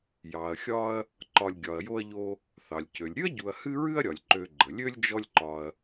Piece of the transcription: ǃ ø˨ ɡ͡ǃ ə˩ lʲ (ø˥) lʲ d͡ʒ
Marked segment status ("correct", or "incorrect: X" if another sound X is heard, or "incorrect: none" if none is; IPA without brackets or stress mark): correct